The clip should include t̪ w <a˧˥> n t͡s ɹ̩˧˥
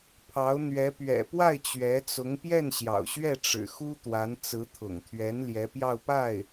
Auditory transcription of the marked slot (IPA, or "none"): a˧˥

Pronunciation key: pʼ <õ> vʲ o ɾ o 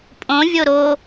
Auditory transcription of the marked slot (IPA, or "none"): õ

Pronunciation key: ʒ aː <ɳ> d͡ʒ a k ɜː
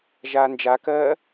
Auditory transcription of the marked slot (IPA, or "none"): n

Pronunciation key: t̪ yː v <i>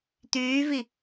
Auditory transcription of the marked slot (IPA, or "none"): i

